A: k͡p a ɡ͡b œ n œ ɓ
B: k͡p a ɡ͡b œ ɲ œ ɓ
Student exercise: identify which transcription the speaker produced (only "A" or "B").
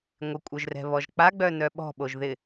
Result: A